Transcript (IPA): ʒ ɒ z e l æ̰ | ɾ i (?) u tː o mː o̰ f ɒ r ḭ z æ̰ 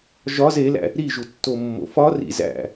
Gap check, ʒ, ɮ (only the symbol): ʒ